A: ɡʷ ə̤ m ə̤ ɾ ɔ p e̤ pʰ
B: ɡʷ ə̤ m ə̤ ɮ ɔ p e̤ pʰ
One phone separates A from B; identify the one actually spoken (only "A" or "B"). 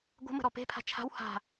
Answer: A